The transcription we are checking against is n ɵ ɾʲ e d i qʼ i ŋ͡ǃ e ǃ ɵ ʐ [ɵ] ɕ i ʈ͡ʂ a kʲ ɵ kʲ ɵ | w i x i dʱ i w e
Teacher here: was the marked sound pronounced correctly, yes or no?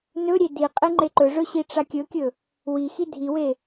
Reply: yes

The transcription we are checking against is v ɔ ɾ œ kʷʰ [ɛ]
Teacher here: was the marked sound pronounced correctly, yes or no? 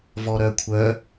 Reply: no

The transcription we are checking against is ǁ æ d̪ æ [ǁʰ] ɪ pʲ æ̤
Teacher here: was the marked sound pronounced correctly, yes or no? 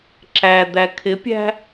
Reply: no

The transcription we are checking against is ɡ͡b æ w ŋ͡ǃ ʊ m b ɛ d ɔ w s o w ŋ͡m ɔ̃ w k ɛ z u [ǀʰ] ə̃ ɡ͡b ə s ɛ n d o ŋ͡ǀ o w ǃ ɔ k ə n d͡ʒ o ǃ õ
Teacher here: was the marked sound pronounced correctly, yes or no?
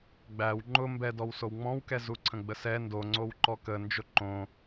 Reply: yes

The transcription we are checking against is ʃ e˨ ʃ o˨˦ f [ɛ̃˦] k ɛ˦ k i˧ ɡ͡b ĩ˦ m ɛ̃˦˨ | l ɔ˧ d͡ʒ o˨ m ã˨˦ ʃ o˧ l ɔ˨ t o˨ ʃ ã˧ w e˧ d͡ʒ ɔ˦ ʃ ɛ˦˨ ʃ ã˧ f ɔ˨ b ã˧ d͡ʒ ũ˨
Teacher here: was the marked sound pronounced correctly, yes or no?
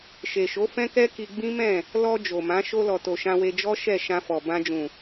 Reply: yes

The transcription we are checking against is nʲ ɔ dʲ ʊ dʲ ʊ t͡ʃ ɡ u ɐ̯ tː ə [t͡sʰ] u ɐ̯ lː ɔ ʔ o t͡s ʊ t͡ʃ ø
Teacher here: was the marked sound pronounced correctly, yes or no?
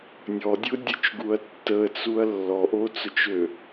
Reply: no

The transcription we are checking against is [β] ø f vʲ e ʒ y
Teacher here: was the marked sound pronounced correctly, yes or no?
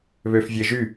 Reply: yes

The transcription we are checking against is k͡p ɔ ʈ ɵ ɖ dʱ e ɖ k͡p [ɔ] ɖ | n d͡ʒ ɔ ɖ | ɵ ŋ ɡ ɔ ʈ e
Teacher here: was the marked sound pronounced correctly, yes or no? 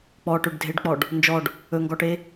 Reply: yes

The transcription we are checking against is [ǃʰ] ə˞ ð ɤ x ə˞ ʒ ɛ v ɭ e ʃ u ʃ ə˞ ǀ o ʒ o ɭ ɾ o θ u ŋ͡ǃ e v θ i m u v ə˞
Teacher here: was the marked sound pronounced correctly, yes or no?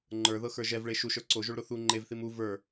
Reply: no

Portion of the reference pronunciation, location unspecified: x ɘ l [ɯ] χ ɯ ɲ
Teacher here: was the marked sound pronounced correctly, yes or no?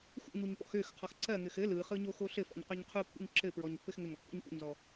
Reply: yes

